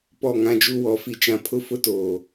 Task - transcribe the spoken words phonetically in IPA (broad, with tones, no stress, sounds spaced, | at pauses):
p ɔ˦˨ ŋ ã˦ d͡ʒ u˦ w ɔ˦ f i˦ t͡ʃ ã˦ pʰ ʊ˦ f ʊ˦ t oː˨